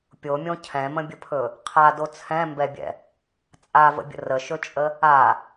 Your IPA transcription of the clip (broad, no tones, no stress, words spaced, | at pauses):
pʲomʲõ cʰɛ̃mə̃bʲəpʰɵ | qʰado t͡sʰɛ̃mbɛbʲɛ̰ | t͡sʼavə̰bʲə̰ rəʃɵt͡ʃʼə | a